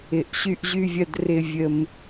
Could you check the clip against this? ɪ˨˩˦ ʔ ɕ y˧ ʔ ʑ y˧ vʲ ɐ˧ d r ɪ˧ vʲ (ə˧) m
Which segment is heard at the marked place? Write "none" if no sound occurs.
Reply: ə˧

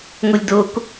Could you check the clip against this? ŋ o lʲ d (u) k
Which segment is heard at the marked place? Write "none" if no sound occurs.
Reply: o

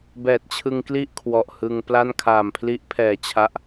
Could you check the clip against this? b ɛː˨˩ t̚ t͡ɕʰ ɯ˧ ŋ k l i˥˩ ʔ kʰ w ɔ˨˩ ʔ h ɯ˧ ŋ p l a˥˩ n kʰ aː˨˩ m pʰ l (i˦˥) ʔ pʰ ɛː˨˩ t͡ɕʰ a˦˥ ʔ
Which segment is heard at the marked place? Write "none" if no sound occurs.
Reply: i˦˥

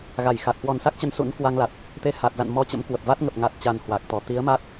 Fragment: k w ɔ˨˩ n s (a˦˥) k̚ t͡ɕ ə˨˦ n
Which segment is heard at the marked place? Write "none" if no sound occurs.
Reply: a˦˥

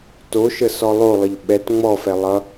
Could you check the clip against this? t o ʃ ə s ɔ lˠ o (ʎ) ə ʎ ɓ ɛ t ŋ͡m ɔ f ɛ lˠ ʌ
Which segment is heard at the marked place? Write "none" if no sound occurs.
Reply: lˠ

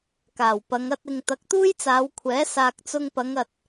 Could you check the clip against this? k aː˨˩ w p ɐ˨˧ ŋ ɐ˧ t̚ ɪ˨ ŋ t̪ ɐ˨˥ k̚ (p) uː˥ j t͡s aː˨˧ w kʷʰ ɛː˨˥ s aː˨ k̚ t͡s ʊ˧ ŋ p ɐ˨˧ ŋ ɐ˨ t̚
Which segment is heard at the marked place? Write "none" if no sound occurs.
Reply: t̪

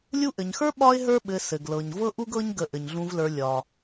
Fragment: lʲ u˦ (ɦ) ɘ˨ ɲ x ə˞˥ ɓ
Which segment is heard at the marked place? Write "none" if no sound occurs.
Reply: ʔ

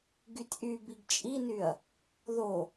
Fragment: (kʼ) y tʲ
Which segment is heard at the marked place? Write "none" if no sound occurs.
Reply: ɡ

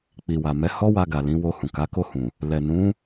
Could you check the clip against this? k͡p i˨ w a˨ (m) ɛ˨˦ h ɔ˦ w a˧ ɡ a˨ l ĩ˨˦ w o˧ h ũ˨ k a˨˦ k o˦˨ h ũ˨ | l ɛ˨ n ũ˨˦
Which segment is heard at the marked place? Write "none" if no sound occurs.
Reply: m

